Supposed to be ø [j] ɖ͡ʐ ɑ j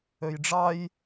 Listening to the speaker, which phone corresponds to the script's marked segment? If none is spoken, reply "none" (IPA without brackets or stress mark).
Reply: j